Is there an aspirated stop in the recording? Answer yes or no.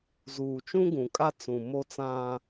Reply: no